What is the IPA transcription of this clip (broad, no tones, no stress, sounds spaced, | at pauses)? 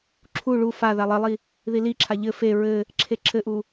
ǁʰ u ɭ u f a ð a lˠ ɘ lˠ i | ð i l i ǁʰ a ʎ ɘ f e ɹ ɘ | ǁʰ e ǁʰ ɘ ʔ u